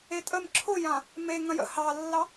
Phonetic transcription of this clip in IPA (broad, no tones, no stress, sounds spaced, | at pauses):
e tʼ ə m ǁʰ ʊ j ã | m e ŋ ɐ̃ j ə̰ h ɑ lː ɑ